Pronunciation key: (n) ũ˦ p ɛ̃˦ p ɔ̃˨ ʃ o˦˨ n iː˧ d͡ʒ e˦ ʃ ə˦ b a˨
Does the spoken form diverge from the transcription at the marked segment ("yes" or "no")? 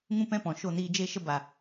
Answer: yes